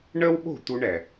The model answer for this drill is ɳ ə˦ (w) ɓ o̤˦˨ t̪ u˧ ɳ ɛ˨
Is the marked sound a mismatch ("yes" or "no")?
no